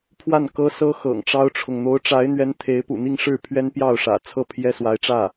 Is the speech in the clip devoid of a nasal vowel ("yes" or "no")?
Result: yes